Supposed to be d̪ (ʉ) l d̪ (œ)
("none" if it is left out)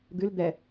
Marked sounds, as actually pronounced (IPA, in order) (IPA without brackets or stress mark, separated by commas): ɨ, ɛ